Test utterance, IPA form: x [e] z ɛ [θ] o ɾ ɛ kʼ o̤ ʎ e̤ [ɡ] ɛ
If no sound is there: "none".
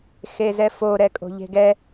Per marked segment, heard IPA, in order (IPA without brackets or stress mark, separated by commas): e, f, ɡ